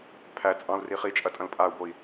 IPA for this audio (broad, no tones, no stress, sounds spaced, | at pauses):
pʰ æ t͡sʼ ɑ̃ u̯ r i χ i t͡ʃʼ ɐ tʼ ɐ̃ l pʼ a u̯ b o i̯